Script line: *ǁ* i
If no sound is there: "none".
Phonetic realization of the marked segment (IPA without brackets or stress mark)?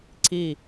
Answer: ǀ